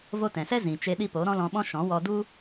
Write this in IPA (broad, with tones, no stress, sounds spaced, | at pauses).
v o˧ t ɛ̃˨ s ɛ˦ z ĩ˨ t͡ʃ e˧ ɗ i˧ p o˨˦ ɾ ɔ̃˦ l ɔ̃˧ ɓ ɔ̃˦ ʃ ɔ̃˨˦ w ɔ˧ d u˦